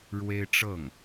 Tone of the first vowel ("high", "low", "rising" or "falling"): high